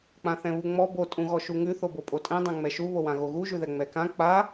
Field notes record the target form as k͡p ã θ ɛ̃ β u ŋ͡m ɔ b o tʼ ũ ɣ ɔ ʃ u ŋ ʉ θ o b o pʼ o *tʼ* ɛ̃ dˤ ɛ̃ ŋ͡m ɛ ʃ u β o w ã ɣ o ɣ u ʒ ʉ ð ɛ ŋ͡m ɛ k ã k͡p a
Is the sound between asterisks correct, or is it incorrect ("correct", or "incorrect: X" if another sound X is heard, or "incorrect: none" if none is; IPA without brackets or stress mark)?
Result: correct